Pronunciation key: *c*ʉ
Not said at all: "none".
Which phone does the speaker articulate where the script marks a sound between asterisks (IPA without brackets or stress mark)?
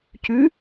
c